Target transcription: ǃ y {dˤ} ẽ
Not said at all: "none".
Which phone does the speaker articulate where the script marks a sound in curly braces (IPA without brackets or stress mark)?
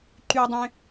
dˤ